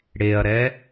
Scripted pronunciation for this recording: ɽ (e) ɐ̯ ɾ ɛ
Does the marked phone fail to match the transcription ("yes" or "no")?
no